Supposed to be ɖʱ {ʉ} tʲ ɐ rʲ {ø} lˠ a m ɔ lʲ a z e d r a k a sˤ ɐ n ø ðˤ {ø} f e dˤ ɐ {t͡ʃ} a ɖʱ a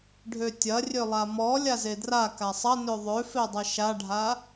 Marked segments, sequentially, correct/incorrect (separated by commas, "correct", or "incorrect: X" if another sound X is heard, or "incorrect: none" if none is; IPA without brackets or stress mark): incorrect: ø, correct, correct, incorrect: ʃ